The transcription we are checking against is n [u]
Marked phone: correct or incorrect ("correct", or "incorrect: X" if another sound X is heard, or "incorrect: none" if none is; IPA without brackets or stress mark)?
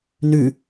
incorrect: ʉ